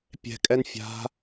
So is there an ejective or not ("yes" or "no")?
yes